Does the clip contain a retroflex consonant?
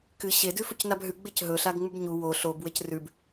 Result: no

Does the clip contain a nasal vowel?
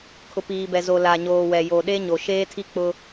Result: no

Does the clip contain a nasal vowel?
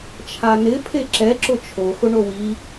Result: no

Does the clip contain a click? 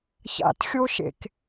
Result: no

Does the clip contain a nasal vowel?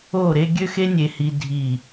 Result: no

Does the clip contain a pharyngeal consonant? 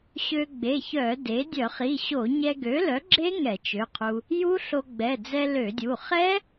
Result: no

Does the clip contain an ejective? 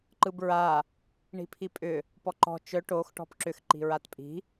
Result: yes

